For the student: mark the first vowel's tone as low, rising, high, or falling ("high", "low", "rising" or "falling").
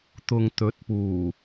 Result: low